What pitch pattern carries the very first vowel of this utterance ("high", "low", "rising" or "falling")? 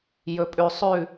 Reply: low